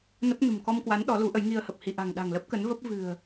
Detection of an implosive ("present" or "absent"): present